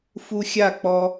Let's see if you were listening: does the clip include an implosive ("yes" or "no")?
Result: no